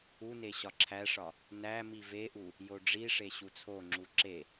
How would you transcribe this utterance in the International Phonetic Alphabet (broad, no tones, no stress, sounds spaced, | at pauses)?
u n e ɕ ɒ ǁʰ æ ʂ ɒ | n æ m i v e ʔ u | j o ɖ͡ʐ i ʂ e ɕ u t͡sʰ o ŋ͡ǁ u ǁ e